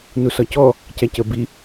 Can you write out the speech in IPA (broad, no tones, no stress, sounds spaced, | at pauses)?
n u s ɒ c ɔ | c æ c ə b i